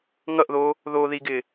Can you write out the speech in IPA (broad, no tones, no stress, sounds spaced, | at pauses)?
ŋ ʌ ʔ ð oː | ð oː ð i ɡ ɪː